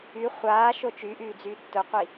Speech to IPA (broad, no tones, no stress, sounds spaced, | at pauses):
y χʷ aː ʃ o t͡ʃ y ʔ yː d͡z yː tː ʊ qʷ i